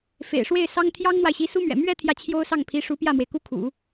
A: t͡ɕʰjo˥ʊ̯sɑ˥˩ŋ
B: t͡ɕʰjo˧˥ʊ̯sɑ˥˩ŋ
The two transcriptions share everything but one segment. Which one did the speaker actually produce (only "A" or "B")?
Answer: A